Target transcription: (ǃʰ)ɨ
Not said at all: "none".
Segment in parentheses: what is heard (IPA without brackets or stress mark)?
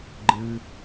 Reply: ɡ͡ǃ